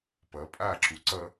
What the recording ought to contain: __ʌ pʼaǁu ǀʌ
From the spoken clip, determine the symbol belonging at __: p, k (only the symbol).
p